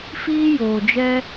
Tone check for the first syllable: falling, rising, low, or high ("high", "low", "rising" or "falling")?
high